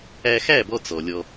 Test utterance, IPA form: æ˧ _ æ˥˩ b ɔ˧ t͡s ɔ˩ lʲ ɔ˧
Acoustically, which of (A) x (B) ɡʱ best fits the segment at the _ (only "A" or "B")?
A